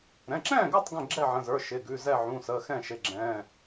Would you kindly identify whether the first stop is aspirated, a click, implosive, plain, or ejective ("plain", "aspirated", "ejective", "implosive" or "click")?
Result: click